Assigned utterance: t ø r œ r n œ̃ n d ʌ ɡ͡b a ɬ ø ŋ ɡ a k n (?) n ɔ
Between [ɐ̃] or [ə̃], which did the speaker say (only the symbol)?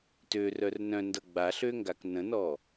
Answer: ə̃